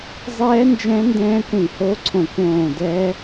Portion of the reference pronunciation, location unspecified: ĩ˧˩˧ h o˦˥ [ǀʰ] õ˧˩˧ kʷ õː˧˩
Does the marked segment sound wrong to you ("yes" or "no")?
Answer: no